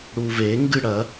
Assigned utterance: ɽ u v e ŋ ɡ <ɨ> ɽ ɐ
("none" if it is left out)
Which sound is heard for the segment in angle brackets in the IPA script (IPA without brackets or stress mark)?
ɨ